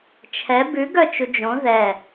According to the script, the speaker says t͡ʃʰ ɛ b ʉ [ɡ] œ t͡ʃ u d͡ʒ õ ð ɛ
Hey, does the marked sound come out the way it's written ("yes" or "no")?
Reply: yes